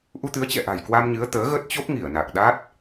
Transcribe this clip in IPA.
ʔu˧t̪ɨ˨˦ə̯t͡ɕɛ̰˧˨ʔa̤˨˩j kwa˧mɲɨ˨˦ə̯ t̪əː˨˦ɣə˦˥t̚t͡ɕo˦˥p̚ŋi˧˩ə̯ na˨˩k̚ɗa˦˥t̚

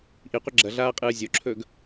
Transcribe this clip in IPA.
ʔiqʷɐ ɡ͡ǁɐɮaːqʼɨː zʲoǁʰɵːɡ

